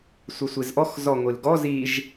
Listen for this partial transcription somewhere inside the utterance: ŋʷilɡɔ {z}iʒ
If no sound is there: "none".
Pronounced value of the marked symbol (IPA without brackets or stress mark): z